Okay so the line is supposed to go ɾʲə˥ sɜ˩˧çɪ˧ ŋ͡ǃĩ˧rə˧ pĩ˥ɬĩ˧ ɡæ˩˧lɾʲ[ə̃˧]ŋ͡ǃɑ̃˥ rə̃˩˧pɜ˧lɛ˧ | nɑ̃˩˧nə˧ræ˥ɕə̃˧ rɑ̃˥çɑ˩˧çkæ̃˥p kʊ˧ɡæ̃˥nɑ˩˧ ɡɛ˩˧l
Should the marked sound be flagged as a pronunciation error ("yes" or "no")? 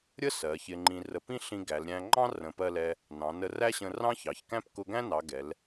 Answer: yes